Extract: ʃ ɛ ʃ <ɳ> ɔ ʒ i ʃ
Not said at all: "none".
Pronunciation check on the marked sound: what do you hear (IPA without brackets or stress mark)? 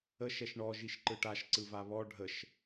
ɳ